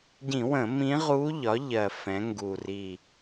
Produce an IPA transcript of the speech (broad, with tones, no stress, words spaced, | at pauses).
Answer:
ɟĩ˧˩˧wə̃˧˩˧ mĩ˧˥ʁu˧˥ʎɒ˩˥ʎɜ˨˩ fɛ̃˩˧ŋɡu˨˩ ri˨˩